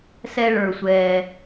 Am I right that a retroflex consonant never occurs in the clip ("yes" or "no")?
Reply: no